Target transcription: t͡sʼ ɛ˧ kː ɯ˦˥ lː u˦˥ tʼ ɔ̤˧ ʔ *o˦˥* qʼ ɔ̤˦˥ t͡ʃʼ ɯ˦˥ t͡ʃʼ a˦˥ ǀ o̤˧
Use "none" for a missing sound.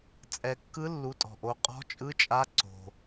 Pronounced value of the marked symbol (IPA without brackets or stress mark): o˦˥